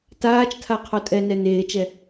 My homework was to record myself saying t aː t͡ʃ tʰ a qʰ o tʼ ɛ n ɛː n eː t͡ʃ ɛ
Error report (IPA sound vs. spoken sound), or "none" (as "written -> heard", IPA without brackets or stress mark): ɛː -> ɛ